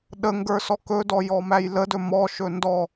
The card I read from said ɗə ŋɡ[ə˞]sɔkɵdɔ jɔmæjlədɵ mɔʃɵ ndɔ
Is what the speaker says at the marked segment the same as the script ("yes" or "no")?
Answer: yes